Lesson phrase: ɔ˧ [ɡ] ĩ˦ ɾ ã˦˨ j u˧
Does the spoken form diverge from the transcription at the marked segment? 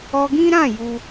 no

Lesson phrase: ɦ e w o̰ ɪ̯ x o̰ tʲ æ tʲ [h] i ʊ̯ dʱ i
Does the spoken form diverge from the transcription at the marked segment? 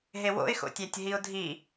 yes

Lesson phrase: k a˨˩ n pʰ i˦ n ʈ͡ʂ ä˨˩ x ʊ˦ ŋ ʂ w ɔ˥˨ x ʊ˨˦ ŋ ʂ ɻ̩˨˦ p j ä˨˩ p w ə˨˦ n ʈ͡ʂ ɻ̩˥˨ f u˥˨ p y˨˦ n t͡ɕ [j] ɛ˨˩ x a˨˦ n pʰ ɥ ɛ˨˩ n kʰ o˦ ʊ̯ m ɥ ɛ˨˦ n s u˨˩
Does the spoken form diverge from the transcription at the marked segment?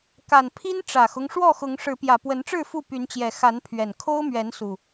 no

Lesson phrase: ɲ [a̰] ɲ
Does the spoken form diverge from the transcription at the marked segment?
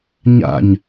no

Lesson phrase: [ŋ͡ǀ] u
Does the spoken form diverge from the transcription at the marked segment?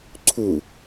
yes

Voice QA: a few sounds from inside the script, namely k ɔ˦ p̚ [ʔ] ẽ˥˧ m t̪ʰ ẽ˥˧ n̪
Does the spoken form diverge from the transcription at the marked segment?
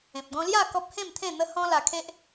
yes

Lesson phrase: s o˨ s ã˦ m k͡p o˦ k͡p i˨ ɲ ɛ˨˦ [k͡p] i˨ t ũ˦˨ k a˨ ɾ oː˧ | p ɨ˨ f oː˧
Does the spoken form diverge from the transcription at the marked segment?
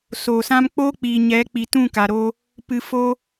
no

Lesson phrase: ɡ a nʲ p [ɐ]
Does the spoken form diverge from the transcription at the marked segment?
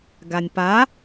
yes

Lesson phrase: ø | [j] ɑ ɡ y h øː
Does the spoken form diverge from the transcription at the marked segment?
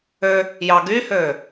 no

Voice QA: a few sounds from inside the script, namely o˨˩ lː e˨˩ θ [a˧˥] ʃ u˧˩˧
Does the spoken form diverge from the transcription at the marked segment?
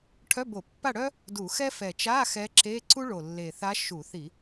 no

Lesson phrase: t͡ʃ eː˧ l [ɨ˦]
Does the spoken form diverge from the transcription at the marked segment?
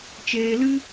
no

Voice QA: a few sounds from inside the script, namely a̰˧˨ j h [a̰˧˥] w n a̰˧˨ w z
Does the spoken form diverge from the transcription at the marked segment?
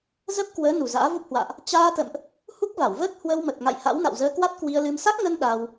no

